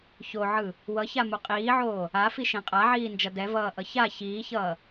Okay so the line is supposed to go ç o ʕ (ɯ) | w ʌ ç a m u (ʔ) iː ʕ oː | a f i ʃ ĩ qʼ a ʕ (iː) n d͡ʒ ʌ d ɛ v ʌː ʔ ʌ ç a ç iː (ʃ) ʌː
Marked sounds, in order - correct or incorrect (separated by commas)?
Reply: correct, incorrect, correct, incorrect